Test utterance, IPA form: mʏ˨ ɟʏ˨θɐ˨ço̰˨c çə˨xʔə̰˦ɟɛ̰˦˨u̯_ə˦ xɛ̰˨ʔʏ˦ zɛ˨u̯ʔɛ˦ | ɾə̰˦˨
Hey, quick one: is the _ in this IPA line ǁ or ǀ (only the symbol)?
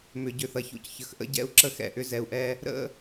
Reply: ǁ